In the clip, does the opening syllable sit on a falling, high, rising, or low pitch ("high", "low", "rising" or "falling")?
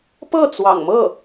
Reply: falling